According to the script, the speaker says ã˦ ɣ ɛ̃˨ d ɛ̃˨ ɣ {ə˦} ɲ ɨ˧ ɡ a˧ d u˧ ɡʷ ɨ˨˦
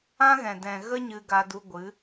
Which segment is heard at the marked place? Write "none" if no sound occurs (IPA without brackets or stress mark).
ə˦